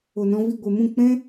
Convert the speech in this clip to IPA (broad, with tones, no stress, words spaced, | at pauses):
o˨nɔ̃˧vi˦˨ ɡʷe˨mũ˦˨k͡pɛ̃˦